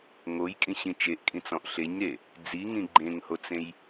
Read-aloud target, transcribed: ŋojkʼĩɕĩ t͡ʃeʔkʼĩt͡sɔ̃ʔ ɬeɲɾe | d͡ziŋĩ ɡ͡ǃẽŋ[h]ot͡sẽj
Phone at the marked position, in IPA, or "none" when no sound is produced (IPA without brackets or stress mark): h